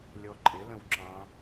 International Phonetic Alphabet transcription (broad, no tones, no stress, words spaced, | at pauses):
lʲɔǃʼɪlə̃w ǁɑ̃